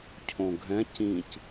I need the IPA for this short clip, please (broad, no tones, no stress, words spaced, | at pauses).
cʰõɡʱɛ̃ cĩc